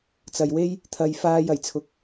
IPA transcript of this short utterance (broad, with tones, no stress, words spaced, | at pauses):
t͡sɐ˨jwe˥j | t̪ʰɐ˧j faː˧j ɐ˨˩jt͡sʰʊ˨k̚